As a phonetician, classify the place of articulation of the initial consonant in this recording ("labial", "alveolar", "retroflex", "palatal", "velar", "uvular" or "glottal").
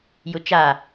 palatal